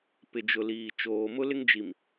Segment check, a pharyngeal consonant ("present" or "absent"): absent